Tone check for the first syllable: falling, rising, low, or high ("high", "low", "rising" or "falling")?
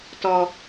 high